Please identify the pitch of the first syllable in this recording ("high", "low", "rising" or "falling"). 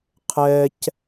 high